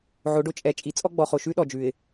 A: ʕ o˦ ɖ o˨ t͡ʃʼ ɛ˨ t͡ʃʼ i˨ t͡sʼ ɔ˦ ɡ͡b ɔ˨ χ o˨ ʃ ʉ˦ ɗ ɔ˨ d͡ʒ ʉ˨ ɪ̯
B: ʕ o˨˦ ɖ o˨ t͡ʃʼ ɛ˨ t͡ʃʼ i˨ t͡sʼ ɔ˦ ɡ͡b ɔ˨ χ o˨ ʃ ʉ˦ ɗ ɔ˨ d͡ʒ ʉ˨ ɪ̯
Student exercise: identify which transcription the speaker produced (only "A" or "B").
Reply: B